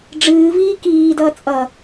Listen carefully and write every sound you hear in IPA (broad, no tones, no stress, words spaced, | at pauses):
ɖ͡ʐɨːviː kiːdʌː t͡sʼʌ